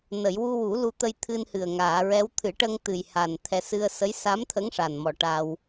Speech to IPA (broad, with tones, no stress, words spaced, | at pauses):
nə˨˩˨jwu˧wu˨˩˦ lu˧t̪ə˧jt̪ʰɨ˧nhɨ˨˩ə̯ ŋaː˨˩˨ɹɛ˧˥w t̪ʰɨ˨˩˦ʈə˧ŋt̪ɨ˨˩j ha˨˩n t̪ʰɛ˧ sɨ˧ə̯ sə˧˥j sa˧˥mt̪ʰə˧˥ŋ ʂa˨˩nmɔ˨˩ ʈaː˧w